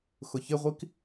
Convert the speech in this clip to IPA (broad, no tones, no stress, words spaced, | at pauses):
xʊçɪʁʷik